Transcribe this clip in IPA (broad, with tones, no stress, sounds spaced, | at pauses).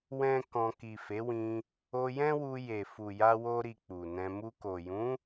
w ɛ̃˦ k ɔ̃˧ k i˨ f e˨˦ w ĩ˧ | o˧ j ɛ̃˦ w u˧ j e˨ f u˨ j a˧ w o˧ ɾ i˧ k͡p u˨ n ɛ̃˧ m u˧ k o˨ j ũ˨˦